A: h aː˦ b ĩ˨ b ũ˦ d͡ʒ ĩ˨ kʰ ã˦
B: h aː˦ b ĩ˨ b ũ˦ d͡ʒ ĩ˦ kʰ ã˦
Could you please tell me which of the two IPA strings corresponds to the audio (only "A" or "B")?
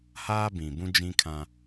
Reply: B